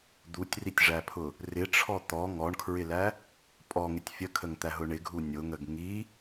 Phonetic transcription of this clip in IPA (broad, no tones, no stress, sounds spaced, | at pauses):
d̪ u tʲ r i tʲ ʐ æ pʰ ʊ | r ɪ ʈ͡ʂʰ ɔ t̪ ɔ ŋ ɔ ɳ kʰ ɹ ɪ l æ | pʼ ɔ ŋ ɪ tʲ fʲ ə kʰ ə ŋ t̪ æ ɦ ʊ ɳ ɪ ɡʱ u nʲ ʊ ŋ ə ɡ ŋ i